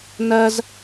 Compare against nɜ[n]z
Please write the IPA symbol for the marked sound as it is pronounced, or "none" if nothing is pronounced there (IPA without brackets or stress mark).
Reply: none